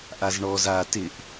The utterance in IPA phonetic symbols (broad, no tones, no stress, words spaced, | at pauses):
ʔazɳɔz a tɪʔ